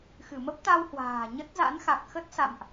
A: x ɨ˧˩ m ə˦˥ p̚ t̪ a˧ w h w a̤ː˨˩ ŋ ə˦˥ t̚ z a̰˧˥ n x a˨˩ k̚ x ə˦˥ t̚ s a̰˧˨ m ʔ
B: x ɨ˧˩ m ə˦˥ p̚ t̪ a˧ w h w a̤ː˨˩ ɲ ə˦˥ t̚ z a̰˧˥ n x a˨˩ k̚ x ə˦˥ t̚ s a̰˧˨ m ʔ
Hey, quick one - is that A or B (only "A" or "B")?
B